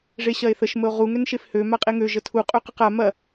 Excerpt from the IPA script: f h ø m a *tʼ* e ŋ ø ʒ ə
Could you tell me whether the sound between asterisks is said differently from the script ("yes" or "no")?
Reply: yes